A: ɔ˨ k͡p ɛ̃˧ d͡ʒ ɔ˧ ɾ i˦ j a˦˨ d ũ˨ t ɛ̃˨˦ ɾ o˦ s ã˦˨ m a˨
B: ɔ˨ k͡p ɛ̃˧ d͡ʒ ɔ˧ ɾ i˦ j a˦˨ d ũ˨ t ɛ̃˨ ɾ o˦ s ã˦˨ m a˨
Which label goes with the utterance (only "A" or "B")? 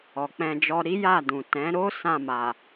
A